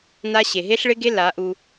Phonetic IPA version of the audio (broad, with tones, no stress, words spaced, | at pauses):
na˦ ɕe˨ɦe˦ɬɭɪ˦ɡe˦ la˨˦ʔu˧